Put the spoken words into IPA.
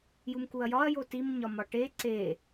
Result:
j u m k u ɐ̯ j ɒ ɐ̯ j o t i m ɲ ɒ m ɒ ʈ e ǀ e

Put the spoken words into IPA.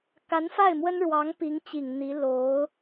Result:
k a˧˥ n f a˥˩ ɪ̯ m w ə˥ n ɻ w ɑ˧˥ ŋ p i˧˥ ŋ t͡ɕ i˨˩ ŋ n̪ i˧˥ l o˧˥ ʊ̯

